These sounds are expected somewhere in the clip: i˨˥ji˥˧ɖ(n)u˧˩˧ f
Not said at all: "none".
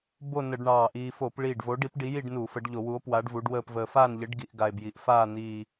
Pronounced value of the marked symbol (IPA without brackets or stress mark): n